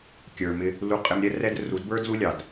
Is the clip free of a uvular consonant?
no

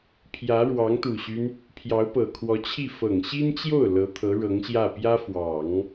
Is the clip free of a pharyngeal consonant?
yes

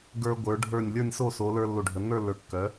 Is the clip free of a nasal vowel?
yes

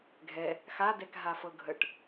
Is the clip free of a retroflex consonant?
no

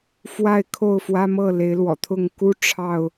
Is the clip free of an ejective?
yes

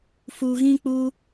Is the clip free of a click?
yes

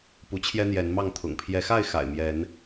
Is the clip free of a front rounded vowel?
yes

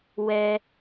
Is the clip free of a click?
yes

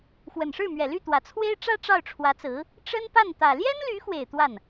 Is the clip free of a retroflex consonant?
no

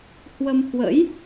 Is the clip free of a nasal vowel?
yes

